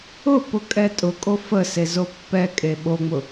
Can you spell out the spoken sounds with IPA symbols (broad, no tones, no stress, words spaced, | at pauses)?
ʊ pʊkʼɛtʼʊkʼo fəse zopːɛkʼe ɓoŋ͡mʊ